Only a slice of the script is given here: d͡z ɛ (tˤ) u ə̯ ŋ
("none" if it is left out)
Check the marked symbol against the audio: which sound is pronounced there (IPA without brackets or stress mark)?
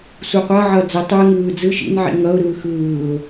tˤ